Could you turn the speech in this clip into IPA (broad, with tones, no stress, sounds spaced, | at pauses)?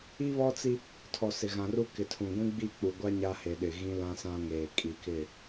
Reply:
i˦ β ɔ˦ t͡s i˦ | tʰ ɔ˨ s ɪ˨ ɣ ã˨ r u˦ k ɪ˨ tʰ ũ˨ ɡʷ ĩ˦ ɡ͡b i˦˨ k͡p u˨ ɡʷ a˦ ɲ a˦ h e˨ ɗ ɪ˨ ɣ ĩ˦ l ã˦ s ã˦ ŋ eː˨ kʼ i˨ k ɪ˦˨